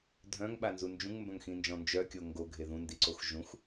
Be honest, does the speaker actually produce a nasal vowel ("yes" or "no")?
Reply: yes